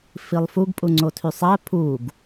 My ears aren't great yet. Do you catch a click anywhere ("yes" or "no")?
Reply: yes